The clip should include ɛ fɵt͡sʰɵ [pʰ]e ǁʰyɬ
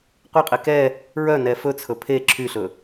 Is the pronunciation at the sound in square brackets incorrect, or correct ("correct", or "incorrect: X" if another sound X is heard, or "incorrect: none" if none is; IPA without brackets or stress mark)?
correct